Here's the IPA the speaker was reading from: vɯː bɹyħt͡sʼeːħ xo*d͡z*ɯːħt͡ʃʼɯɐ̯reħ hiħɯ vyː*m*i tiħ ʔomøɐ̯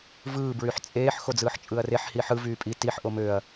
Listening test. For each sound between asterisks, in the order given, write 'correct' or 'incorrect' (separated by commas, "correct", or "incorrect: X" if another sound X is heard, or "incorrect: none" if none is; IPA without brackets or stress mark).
correct, incorrect: pʼ